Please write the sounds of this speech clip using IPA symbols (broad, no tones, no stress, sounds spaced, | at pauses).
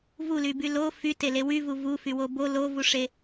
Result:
v u l y b y l o f y t e l e w y v u v u f y w o b o l o v u ʂ e